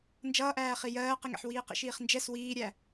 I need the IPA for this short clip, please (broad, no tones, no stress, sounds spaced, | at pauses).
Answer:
n d͡ʒ ʌː ʔ æː χ i j ɜː q i ŋ ɛ̰ ħ w iː q ḭ ʃ iː χ n d͡ʒ ɛ s w iː ɾʲ æ